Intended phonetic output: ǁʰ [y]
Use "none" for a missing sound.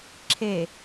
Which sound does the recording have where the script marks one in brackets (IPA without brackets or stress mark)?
e